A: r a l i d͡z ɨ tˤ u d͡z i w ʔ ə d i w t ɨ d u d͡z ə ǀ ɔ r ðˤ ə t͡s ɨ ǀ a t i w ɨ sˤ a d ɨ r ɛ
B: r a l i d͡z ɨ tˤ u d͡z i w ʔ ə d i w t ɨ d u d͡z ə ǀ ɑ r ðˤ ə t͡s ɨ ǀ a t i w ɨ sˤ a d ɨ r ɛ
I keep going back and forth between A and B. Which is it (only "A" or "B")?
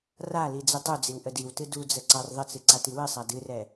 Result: B